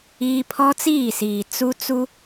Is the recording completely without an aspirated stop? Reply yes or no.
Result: no